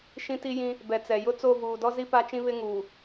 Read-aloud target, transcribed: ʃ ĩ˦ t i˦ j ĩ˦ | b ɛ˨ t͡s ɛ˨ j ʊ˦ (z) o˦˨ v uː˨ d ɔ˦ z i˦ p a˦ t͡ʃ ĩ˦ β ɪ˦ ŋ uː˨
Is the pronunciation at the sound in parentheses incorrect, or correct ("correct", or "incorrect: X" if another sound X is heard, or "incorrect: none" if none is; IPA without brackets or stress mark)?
incorrect: t͡s